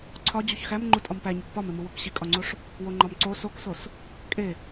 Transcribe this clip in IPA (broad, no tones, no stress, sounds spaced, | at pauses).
ǀʰ ɒ d͡ʑ u ç x æ m ŋ͡ǃ u tʼ ɒ m p æ ɲ u k p ɒ m e m u w o k ɕ i kʼ ɒ ŋ͡ǀ o ʂ | w o ŋ͡ǃ ɒ m ǀ o s o k s o s | kʼ e